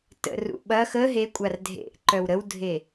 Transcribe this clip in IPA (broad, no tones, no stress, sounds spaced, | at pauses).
t ə̰ r ṵ ɓ ɐ x ə ɦ e kʷʼ a r dʱ ḛ ʔ ǃ œ w ɾ ə w dʱ e